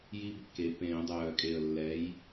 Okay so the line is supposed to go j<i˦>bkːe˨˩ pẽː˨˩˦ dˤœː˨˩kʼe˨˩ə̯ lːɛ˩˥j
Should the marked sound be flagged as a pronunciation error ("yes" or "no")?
no